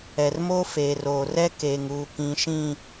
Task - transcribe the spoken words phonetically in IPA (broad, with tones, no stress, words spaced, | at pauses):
ɛ˨rmoː˦ feː˨roː˨ rɛ˦keː˨ŋ uː˨kĩ˨ʃĩ˦˨